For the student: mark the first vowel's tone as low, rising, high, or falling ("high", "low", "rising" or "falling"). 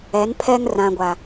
rising